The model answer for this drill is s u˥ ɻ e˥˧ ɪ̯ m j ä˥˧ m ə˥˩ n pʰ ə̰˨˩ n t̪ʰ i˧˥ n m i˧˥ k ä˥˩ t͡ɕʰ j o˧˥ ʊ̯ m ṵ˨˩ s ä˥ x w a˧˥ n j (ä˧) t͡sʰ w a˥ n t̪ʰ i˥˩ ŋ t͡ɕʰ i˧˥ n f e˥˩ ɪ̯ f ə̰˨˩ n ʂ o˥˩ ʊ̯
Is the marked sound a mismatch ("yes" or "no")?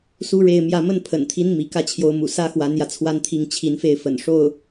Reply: no